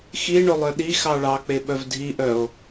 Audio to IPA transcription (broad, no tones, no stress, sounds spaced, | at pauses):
x i ɳ o lˠ œ ɗ i x ɑ ɭ ɑ k͡p e ɓ œ v dʱ i ʔ œ o̯